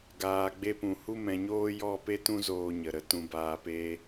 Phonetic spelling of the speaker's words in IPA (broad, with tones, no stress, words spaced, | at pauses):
ɡaː˨ɡ͡be˧pũ˨ hu˦mɛ̃˧ɲoː˦ jɔ˦˨pe˦tũ˦ zoː˧ɲə˨ɾə˧ tũ˧baː˧peː˦